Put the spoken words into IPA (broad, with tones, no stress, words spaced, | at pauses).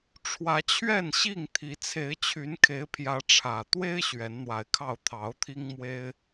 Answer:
ʈ͡ʂʰwä˨˦t͡ɕʰɥɛ˥˨nɕi˥˨ŋ t̪ʰi˨˦ t͡sʰe˨˦ɪ̯t͡ɕʰy˨˦nkʰe˨˦ɪ̯pʰjä˨˦ ʈ͡ʂʰä˨˩ t̪we˦ɪ̯ ɕɥɛ˨˦nn̪wa˨˦ɪ̯kʰɑ˥˨ʊ̯ t̪ʰɑ˨˦ʊ̯t̪ʰi˦ŋ mwe˦ɪ̯